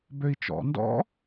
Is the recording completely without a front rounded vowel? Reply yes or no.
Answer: no